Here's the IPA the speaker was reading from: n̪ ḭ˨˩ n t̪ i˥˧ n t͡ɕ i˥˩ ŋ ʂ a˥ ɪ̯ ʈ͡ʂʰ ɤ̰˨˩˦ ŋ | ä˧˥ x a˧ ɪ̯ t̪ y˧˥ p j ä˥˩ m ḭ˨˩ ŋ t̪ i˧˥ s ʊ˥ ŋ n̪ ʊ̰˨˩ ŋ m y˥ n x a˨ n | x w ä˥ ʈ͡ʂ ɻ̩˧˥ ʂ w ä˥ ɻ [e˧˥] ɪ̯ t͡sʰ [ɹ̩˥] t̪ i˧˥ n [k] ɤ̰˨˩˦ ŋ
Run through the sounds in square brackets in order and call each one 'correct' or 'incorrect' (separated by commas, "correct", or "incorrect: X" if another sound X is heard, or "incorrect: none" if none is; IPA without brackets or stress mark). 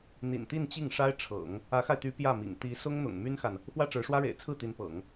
incorrect: ḛ˨˩, incorrect: ɹ̩˥˩, incorrect: p